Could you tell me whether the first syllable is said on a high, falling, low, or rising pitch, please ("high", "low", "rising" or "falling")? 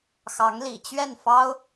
rising